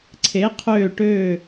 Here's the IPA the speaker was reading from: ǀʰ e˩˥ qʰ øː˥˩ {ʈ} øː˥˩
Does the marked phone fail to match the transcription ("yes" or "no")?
no